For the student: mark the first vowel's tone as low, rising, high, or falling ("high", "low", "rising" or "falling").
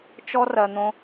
high